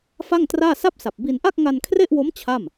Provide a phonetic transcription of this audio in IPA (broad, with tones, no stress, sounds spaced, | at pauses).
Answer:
f a˥˩ ŋ t r aː˥˩ s a˥˩ p̚ s a˨˩ p̚ b i˧ n ʔ a˥˩ k̚ ŋ a˧ n kʰ r e˥˩ ʔ w o˦˥ m t͡ɕʰ a˥˩ m